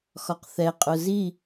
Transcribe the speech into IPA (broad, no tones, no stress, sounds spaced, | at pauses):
x ɒ q θ ɛ qʼ ʊ z i